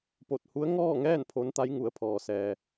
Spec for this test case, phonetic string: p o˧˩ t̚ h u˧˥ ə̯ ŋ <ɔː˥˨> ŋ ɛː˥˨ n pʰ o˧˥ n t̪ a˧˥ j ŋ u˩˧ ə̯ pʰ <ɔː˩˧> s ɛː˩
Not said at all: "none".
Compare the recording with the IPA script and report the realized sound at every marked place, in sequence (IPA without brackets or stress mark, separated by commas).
ɔː˥˨, ɔː˩